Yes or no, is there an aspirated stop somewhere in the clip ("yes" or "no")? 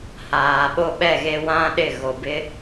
no